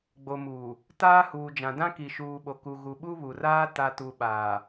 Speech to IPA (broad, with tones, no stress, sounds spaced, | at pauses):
ɡ͡b o˨ m uː˨ | t aː˦ h uː˨ d͡ʒ ã˨ d ã˦ k i˨ ʃ uː˨ ɓ o˨ k u˨ ɣ u˨ ɓ u˦ β u˨ r aː˦ t a˨ t u˨ ɓ aː˨